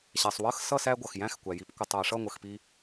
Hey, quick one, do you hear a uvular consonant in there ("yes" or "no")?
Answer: no